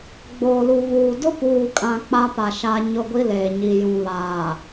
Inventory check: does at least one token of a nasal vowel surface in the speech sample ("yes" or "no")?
yes